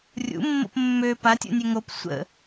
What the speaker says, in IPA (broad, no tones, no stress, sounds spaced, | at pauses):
rʲ ṵ mː o̰ p mː ø p a tʲ ṵ nʲ ø ŋ o p sʷ ə̰